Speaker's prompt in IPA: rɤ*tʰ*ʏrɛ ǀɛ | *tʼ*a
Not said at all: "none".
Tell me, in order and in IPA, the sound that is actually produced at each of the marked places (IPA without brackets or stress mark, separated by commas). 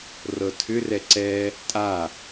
tʰ, tʼ